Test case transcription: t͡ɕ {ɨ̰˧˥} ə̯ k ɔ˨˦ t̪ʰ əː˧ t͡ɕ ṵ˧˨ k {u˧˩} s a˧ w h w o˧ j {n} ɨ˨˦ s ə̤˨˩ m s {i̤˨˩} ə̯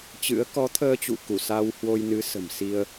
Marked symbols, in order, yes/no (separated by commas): yes, yes, yes, no